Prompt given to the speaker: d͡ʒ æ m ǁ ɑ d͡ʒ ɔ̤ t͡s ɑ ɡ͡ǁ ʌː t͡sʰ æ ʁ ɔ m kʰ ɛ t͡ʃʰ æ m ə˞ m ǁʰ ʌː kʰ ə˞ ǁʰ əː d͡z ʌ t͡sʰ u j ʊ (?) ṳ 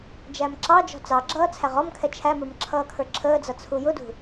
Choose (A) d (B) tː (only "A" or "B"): A